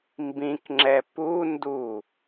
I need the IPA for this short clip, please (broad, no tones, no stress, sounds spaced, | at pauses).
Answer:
m b ĩ k ŋ͡ǁ ɛ p u n d u